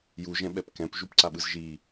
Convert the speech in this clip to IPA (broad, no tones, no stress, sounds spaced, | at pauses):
j u ʒ ɛ̃ ɓ ɛ p k ɛ̃ p ʒ u p ǀ a ɓ ɯ z ʒ i